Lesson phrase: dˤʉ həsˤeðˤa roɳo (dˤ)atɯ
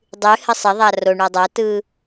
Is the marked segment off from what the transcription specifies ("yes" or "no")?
no